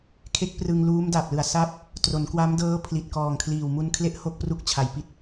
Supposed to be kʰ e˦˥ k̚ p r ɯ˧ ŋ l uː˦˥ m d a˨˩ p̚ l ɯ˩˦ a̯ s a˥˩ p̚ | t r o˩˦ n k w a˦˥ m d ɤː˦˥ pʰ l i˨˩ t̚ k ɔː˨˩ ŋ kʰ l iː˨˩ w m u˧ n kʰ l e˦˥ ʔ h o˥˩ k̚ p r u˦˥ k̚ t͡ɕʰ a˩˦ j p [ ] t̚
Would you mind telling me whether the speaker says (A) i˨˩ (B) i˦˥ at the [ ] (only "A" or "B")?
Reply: B